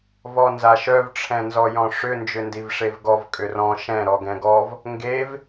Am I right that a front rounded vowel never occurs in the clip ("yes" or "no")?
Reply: no